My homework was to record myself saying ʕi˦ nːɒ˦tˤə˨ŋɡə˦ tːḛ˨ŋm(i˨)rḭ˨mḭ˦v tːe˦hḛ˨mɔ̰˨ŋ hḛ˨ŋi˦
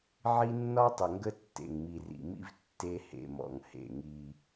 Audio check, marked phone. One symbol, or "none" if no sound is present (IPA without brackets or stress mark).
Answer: i˨